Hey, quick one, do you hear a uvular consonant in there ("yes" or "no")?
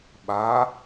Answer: no